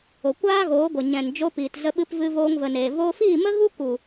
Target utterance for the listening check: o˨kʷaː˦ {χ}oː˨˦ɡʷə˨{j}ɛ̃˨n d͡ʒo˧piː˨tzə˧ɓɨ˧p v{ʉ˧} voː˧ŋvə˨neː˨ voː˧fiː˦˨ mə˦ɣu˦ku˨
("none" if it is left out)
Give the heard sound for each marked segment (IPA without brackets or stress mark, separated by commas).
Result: ɣ, ɲ, ɨ˧